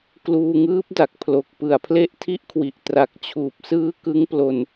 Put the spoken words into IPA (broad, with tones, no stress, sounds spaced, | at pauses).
k l uː˧ ŋ ɯː˦˥ p̚ d a˨˩ k̚ pʰ l o˨˩ k̚ p ɯ˨˩ a̯ pʰ l e˥˩ ʔ tʰ i˦˥ ʔ kʰ w i˨˩ ʔ t r a˨˩ k̚ t͡ɕʰ uː˨˩ p̚ s ɯː˦˥ k ɯ˦˥ ŋ p l o˧ n